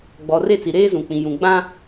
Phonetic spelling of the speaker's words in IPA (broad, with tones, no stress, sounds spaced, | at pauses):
ɡ͡b ɔ˨ r e˦˨ t͡s i˨ ɾ eː˦ z ũ˨ k͡p ĩ˨ j ũ˨ ɡ͡b ã˦